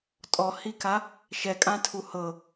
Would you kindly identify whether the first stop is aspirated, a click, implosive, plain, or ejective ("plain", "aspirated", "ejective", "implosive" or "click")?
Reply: ejective